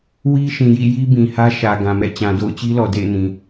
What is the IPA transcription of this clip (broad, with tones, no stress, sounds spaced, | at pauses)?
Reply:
w i˦ ʃ ĩ˨ j ḭ˦˨ j i˦ b ĩ˨ h ä˦ ʃ ä˨ ɡ ã˨ m ɛ̰˦˨ t͡ɕ ã˨ d o̰˦˨ ʊ̯ t͡ɕ i˦ l ɔ˨ d ḛ˦˨ ɪ̯ n ĩ˨